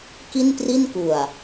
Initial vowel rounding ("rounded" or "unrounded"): unrounded